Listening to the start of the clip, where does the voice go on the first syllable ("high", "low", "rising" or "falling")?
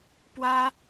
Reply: high